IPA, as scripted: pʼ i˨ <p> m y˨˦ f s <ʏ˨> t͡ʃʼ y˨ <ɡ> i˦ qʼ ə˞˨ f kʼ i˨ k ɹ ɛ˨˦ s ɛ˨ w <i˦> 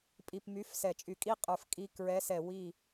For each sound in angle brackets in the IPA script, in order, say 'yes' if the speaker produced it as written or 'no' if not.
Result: yes, no, no, no

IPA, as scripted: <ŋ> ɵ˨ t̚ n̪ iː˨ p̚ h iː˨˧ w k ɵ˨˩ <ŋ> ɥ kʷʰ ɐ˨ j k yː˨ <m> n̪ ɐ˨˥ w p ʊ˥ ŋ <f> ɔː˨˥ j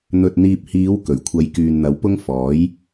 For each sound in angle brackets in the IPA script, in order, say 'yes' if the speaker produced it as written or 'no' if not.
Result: no, no, no, yes

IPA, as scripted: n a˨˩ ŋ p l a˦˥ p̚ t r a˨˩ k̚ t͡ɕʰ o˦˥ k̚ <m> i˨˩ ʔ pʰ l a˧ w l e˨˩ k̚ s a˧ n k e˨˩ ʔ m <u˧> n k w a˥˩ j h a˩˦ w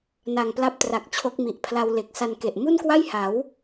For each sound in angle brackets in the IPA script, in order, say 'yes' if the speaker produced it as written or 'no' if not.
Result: yes, no

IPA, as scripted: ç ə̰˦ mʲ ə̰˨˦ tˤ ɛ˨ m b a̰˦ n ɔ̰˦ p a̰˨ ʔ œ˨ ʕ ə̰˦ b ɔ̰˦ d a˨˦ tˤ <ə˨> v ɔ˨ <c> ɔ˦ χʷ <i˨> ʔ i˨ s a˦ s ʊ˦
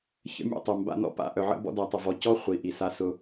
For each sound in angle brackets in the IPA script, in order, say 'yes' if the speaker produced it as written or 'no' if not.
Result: yes, yes, yes

